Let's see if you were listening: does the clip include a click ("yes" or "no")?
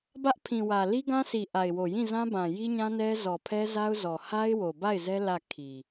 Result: no